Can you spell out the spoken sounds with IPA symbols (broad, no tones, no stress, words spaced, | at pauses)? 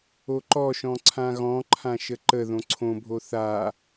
oǃɔʃɔ̃ ǀʰãɣɔ̃ǃʰã ʃəǃəðõ ǀʰõbʱo θa